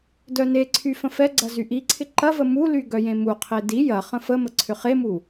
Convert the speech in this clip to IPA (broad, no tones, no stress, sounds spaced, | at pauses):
d œ n e ǀʰ y f ə̃ f ɛ ɡ͡ǀ ɐ z y ʔ i ǀʰ ɪ ǃ ɐ v ə m u l y ɡ œ j ẽ m u qʰ e d i j ɐ χ ə̃ f ə m ə ǀʰ ʏ χ e m u